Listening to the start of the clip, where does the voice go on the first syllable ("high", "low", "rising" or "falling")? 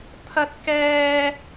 high